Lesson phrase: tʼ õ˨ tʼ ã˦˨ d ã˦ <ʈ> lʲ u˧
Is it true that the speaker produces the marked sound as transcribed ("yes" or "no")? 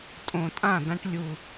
yes